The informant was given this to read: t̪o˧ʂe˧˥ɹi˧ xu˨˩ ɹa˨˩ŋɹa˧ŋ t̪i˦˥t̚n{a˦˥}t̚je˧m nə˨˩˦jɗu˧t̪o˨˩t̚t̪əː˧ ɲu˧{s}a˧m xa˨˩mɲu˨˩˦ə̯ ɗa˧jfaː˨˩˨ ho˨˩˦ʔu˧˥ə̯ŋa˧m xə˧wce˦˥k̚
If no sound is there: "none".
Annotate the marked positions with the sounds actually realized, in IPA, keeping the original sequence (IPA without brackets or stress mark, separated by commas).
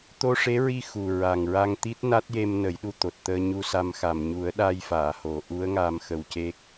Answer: a˦˥, s